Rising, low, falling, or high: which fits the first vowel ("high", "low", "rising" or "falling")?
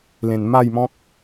low